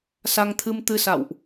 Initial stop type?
aspirated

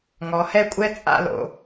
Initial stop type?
ejective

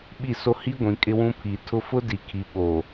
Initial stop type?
implosive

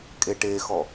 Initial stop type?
ejective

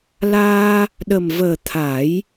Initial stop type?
implosive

